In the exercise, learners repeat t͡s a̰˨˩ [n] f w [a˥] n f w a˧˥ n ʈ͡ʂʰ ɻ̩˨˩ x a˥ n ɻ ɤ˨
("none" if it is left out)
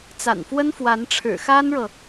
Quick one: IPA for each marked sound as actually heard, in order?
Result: n, ə˥

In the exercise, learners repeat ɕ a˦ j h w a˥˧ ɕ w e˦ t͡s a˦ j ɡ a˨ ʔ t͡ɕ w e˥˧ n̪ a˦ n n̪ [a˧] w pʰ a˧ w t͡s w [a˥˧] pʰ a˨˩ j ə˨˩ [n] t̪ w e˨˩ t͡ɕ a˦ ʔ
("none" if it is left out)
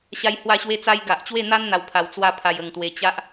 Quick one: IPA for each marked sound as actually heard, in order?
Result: a˧, a˧, ŋ

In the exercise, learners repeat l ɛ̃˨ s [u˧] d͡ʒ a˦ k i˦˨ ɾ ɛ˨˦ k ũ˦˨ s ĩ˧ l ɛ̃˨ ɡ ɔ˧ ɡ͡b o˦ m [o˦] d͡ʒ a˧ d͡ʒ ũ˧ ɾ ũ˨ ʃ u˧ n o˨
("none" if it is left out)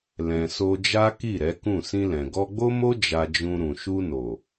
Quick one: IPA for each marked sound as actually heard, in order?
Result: o˧, o˦

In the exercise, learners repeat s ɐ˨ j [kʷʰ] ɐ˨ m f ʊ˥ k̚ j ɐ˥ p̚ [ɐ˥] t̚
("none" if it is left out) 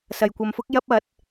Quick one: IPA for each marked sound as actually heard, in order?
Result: kʷ, ɐ˨˥

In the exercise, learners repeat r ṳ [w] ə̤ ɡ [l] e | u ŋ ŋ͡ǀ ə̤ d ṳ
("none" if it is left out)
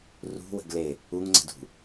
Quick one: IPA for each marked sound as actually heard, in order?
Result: w, l

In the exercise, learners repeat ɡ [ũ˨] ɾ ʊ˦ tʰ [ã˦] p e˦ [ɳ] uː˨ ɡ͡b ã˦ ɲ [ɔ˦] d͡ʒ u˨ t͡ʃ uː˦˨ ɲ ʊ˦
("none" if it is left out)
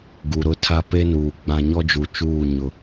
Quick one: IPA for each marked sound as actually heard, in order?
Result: u˨, a˦, n, ɔ˦

